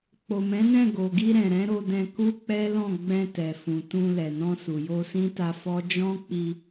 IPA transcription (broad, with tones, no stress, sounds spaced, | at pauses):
k͡p o˨ m ɛ̃˨˦ n ɛ̃˦˨ ɡ o˨ ɡ i˧ ɾ ɛ̃˨ ɾ ɛ̃˨˦ ɾ o˧ d ɛ̃˧ k u˦ k͡p ɛ˦ l ɔ̃˦˨ ɡ͡b ɛ̃˧ t ɛ˨ f ũ˨ t ũ˧ l ɛ˨ n ɔ̃˧ s u˨ j o˧ s ĩ˦ t a˧ f ɔ˦ d͡ʒ ɔ̃˦ k͡p i˧